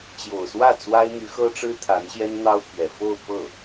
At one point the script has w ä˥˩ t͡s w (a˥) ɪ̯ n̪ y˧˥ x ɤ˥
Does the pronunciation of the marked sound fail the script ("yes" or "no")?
no